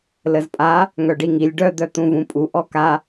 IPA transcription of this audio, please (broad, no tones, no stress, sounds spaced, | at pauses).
l ə z pʼ a | ŋ œ ɖ i ŋ i lʲ ɖ œ d̪ œ t̪ ũ v ũ pʼ u ʔ ɔ k a